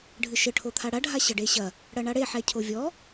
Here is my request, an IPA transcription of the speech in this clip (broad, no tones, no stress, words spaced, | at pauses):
ɖʱɨʃɘ ʈʰot̪ʰaɽa ɖʱaɕɐɖeɕɐ | ɽɐɳaɽe ħɛcʰovʲɔ